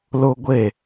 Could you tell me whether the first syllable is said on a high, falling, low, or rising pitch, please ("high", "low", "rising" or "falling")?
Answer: high